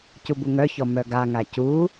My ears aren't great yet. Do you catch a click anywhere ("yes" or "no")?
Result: no